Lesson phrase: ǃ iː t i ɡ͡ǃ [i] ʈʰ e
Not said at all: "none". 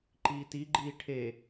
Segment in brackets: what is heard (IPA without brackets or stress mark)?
iː